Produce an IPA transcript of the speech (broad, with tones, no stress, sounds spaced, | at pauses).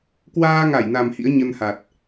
k w aː˧ ŋ a˧˩ j n a˨˩ m h ḭ˧˥ ə̯ ɲ ə˧ n h a˨˩ t̚